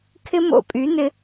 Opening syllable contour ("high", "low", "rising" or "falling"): high